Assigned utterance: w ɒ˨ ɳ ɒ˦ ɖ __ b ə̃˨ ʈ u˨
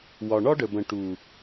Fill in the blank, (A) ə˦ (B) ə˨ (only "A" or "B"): B